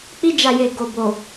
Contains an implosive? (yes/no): no